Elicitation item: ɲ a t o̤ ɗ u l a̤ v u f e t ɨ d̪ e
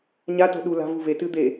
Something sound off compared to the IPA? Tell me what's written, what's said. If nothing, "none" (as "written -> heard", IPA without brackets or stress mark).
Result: f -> v